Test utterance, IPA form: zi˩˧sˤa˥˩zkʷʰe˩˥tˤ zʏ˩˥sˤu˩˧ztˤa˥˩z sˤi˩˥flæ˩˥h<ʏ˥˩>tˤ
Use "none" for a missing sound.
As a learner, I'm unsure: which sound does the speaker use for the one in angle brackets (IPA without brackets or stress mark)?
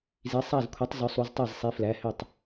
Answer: ʏ˥˩